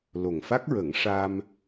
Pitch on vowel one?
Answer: low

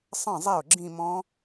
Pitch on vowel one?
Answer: falling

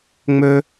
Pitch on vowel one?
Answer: high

